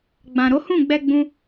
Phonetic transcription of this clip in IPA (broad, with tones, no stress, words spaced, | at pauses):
ɡ͡bã˨ɾo˨˦hũ˦˨ɡ͡bɛ˧ ɡ͡bũ˧